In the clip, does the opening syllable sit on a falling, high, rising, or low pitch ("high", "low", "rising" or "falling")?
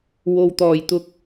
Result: low